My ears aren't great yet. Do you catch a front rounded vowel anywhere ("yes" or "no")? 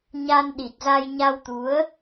no